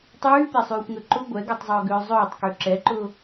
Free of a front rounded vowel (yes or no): no